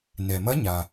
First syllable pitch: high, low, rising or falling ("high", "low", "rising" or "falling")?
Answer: low